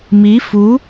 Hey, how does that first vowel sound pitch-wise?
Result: rising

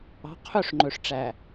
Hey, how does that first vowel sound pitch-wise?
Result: rising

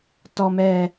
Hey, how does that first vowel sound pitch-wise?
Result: low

